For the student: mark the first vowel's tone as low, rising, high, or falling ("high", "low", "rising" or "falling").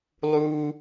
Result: high